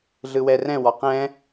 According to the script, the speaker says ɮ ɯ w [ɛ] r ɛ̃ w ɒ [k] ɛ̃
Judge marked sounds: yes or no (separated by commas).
yes, no